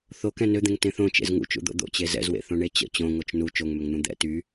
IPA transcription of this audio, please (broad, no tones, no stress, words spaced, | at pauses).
θo kɛ̃nød̪ẽŋ tẽθõt͡ʃḛz ŋṵt͡ʃṵd̪o̰ d̪o̰t͡ɕe zɛ̰zwḛ θõɳet͡ɕə̰ t͡ɕõŋot͡ʃ nu t͡ʃoŋmøŋn̪ũ d̪ɛ̰ ty